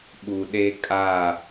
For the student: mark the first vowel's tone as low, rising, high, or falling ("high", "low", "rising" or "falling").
low